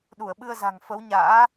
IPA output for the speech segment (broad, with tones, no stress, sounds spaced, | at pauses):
ɗ u˧˩ ə̯ ɓ ɨ˧ ə̯ z a̤˨˩ ŋ f ə˨˦ w ɲ a̰ː˧˥